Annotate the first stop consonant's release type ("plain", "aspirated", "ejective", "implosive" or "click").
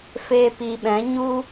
plain